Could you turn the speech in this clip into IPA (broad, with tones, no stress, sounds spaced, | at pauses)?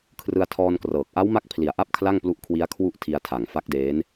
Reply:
kʰ r ɯ˧ a̯ tʰ ɔː˧ n k r ɤː˨˩ k̚ ʔ a˦˥ w m a˦˥ k̚ pʰ l i˨˩ a̯ ʔ a˥˩ p̚ kʰ l a˥˩ ŋ p l u˦˥ ʔ kʰ w i˦˥ a̯ kʰ w u˥˩ ʔ tʰ i˧ a̯ tʰ a˨˩ ŋ f a˦˥ k̚ d eː˦˥ n